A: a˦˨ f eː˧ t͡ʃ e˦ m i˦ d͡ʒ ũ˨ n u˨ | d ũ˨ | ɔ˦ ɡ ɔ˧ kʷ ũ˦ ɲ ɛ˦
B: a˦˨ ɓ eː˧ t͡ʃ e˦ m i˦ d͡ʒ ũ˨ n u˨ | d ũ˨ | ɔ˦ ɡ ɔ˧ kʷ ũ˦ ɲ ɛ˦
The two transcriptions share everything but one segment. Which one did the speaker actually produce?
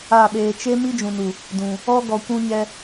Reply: B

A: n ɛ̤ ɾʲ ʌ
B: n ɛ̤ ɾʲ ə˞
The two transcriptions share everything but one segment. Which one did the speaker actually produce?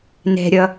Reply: A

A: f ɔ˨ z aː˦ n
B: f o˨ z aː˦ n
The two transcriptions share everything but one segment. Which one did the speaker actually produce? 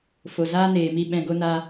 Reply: B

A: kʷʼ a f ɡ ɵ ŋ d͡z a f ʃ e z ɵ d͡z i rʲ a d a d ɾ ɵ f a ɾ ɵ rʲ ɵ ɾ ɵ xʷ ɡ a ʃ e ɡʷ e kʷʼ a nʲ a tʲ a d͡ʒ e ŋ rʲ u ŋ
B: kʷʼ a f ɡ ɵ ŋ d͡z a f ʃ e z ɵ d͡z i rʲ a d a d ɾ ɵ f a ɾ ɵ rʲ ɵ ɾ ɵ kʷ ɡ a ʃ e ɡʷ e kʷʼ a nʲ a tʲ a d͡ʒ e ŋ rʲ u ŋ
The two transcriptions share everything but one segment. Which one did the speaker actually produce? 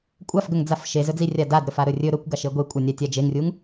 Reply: B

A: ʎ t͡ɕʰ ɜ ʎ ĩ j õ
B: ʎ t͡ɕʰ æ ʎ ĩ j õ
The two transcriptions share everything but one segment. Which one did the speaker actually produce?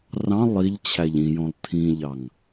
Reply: B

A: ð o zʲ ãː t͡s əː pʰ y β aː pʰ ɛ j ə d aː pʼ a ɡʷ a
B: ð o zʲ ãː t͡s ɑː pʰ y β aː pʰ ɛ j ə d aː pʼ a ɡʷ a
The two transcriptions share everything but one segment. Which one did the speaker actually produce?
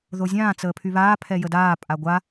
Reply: A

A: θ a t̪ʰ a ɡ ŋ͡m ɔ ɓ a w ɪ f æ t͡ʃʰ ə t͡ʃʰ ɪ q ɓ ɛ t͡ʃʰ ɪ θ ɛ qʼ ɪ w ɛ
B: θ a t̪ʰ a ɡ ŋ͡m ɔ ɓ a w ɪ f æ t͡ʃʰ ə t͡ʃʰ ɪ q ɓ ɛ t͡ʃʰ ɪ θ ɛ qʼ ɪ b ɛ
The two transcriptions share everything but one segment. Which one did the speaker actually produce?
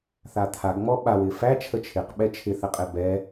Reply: B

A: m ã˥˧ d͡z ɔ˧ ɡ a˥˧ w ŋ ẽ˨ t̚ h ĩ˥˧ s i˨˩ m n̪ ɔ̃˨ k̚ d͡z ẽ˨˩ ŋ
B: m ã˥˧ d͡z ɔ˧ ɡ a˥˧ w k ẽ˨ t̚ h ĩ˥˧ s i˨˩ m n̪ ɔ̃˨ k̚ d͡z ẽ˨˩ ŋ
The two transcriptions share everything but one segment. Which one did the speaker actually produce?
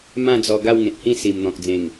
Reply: A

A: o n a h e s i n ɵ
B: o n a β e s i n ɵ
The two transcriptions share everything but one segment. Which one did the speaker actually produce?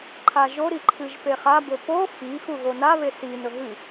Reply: B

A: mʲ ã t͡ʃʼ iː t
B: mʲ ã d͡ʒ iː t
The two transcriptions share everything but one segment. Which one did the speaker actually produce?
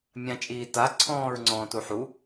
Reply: A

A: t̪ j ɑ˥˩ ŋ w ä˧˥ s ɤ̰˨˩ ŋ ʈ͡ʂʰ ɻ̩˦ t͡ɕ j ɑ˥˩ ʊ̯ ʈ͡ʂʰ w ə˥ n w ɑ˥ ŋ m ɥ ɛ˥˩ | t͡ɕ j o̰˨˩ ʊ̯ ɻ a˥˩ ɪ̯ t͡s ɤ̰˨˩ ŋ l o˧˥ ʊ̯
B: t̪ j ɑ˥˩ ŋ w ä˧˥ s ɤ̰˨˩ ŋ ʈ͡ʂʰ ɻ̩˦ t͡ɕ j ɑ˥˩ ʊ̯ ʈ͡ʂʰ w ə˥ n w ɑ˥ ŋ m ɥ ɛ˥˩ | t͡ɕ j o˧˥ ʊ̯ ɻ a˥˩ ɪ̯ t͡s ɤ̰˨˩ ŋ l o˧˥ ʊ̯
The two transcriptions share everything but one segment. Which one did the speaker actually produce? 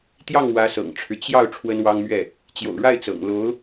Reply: A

